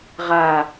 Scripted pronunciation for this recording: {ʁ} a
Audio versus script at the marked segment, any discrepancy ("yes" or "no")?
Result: no